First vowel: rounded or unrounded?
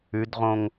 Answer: rounded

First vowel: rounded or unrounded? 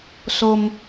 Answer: rounded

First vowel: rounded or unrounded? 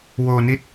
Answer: rounded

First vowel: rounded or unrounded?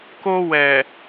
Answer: rounded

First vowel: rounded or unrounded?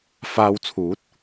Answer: unrounded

